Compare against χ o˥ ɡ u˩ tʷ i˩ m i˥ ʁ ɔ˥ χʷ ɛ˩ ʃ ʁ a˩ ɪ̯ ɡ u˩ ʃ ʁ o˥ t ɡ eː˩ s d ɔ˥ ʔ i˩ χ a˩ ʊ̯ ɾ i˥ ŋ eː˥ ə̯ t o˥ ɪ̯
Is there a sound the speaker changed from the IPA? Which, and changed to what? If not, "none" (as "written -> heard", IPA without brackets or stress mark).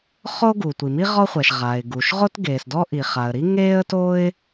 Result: ʊ̯ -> ə̯